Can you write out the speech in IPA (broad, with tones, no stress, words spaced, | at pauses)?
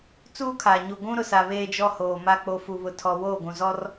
t͡suː˦kʰa˨ ɲu˨ɡʷũ˦ ɾʊ˨sa˨ βeː˨ d͡ʒɔ˦hoː˨ma˦ k͡po˨fu˨βʊ˨tʰɔ˨ woː˦˨ɡʷũ˨zɔ˦r